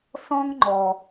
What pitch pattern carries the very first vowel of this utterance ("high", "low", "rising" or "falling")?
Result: high